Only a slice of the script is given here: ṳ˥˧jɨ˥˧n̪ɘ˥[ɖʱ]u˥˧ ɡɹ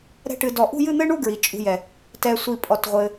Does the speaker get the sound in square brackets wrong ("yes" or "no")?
yes